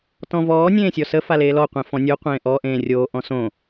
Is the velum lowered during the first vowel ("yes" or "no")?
yes